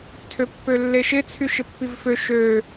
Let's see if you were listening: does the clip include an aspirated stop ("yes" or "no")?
yes